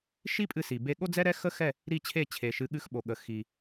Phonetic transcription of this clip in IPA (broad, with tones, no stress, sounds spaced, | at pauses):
ʃ i˥ pʼ ɨ˧ s i˩ b e˧ ɠ o˥ d͡z ɛ˥ ɾ ɛ˥ x ə˥ x ɛ˥˩ | ɾ i˥˩ t͡ɕʰ e˥˩ t͡ɕʰ e˩ ʃ ɨ˩˥ ɠ ɨ˧ x ɓ o˩ ɠ ə˩ x i˩